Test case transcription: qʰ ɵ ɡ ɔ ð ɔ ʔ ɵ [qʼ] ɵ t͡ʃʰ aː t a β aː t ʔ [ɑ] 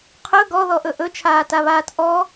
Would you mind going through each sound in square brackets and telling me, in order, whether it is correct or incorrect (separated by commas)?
incorrect, incorrect